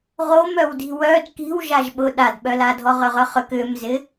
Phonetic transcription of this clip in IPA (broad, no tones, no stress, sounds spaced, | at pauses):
ʁ o m œ w d i̤ w œ d k i̤ w ʒ a ʒ ɓ ʊ ɗ a d ɓ œ l a dʱ ɔ ʁ ʏ ʁ œ χ ʏ k ʏ m z ɪ